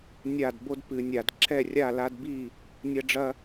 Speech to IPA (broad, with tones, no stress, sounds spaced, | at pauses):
nʲ a˥˩ d b o˦ d p ɨ˧˩˧ nʲ a˧˩˧ d ǁʰ ɛ˥˩ rʲ a˥˩ l a˦ d b i˥˩ | nʲ ɐ˦ ɖ͡ʐ ɐ˦